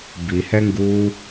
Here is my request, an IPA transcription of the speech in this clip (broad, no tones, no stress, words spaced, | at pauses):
bihɛŋɡuː